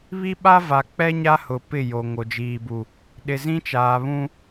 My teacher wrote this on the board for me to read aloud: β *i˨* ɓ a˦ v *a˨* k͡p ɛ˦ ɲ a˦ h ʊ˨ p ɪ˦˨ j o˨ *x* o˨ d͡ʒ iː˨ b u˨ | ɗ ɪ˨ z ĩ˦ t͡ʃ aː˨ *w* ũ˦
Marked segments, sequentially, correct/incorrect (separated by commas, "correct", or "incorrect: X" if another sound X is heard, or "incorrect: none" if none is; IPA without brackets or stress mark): incorrect: i˦, correct, incorrect: ŋ, incorrect: β